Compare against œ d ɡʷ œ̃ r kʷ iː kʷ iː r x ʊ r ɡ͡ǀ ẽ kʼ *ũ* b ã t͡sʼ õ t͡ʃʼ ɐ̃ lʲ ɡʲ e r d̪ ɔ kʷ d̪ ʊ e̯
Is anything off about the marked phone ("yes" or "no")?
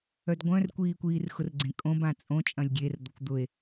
yes